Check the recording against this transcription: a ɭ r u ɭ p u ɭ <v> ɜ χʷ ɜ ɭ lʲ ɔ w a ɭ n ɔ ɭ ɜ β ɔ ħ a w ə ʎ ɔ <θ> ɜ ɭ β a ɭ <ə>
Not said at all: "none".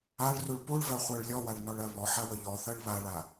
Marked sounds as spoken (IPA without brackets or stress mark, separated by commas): v, θ, a